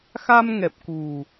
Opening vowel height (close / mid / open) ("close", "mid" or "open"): open